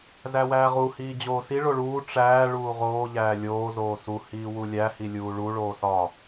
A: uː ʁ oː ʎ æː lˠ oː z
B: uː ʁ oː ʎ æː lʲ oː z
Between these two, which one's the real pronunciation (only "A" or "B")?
B